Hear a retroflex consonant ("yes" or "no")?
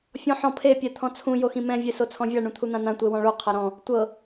yes